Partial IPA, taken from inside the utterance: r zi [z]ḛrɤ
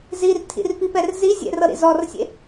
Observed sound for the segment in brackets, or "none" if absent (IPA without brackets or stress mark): zʲ